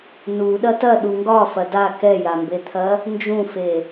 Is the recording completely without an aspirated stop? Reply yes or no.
no